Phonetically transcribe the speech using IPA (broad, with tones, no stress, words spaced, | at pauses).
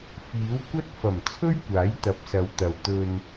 fiː˨˥wkʷɐ˥t̚ fɐ˨˩m t͡sʰɵ˥ɥkʷaː˨˥jt̪ɐ˨˥p̚sɐ˨˧w t̪ɐ˨wt̪ɵ˧n